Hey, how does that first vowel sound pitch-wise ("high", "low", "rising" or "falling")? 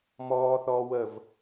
high